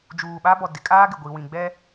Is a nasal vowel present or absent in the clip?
present